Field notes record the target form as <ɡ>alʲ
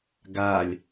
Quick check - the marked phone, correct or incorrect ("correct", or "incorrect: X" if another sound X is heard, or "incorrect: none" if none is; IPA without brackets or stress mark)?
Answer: correct